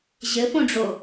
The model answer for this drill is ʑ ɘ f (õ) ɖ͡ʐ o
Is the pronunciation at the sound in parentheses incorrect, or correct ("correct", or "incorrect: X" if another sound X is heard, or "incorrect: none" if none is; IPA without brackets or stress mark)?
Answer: correct